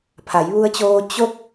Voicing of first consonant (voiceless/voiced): voiceless